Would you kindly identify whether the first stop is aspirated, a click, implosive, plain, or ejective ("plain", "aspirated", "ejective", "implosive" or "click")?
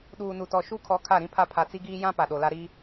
implosive